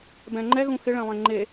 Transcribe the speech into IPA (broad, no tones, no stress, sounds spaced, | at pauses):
b ɛ̃ ŋ͡ǃ ɛ ɣ ũ x ɪ ɭ ɛ̃ lˠ ẽ ŋ͡ǃ e